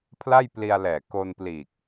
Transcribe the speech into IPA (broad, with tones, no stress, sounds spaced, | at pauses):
pʰ l a˥˩ j p l i˧ a̯ l ɛː˨˩ k o˧ n p l iː˨˩ k̚